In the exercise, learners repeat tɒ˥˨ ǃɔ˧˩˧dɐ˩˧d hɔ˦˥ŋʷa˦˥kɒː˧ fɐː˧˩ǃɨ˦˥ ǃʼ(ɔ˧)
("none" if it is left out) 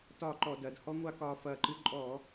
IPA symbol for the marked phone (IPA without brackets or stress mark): ɔ˧˩˧